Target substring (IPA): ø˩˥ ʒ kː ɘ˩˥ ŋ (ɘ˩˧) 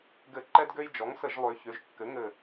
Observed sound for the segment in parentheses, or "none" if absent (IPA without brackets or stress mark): ɘ˧˩